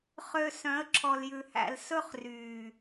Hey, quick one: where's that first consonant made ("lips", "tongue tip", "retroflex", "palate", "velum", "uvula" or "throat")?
uvula